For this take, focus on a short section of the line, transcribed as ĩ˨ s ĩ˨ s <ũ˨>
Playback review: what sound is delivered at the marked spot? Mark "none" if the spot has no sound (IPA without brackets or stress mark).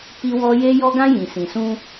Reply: ũ˦